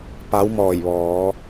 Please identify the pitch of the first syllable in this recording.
rising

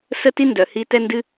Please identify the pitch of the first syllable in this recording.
high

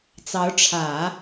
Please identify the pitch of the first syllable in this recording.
rising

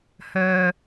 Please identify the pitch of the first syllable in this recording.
low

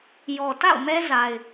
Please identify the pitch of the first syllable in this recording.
low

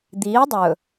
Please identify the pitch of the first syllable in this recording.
rising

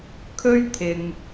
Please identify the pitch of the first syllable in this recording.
high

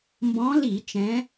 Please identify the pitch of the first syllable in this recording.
rising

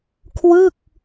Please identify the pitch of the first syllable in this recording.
falling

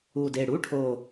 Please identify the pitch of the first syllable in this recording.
low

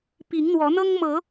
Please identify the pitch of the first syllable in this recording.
rising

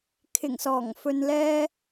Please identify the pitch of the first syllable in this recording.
low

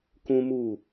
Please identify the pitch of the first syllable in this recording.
high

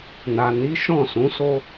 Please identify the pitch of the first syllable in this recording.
low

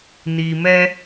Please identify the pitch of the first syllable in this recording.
low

